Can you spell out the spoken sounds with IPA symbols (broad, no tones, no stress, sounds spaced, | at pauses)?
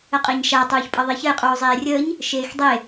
ə qʼ e ɲ ʃ a tˤ uː ç pʼ ʌ ðˤ e ç ə j qʼ uː zˤ eː rʲ əː ɲ | ʃ eː x dˤ e